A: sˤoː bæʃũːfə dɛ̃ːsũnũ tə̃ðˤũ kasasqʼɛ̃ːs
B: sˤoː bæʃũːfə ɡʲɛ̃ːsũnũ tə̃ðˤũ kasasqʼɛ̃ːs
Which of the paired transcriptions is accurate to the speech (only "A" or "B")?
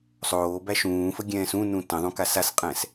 B